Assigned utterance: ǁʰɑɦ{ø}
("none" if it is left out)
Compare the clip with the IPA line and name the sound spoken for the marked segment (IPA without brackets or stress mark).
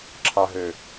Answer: ø